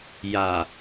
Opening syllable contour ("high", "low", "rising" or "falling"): low